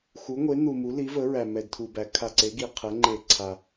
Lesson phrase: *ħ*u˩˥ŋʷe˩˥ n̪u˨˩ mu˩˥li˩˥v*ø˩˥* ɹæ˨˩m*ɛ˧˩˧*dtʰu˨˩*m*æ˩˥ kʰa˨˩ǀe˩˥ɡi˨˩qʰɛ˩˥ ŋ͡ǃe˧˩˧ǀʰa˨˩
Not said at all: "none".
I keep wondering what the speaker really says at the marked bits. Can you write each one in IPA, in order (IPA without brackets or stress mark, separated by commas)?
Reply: x, ə˩˥, ɛ˨˩, b